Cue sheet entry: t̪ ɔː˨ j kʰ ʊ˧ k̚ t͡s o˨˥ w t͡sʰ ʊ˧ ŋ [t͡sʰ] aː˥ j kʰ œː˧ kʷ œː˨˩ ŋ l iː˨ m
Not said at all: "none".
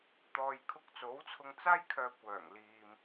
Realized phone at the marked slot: t͡s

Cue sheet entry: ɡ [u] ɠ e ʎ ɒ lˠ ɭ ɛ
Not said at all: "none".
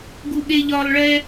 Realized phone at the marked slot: u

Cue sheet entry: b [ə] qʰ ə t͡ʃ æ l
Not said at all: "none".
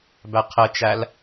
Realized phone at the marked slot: æ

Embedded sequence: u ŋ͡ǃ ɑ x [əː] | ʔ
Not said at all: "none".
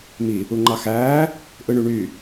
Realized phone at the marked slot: æː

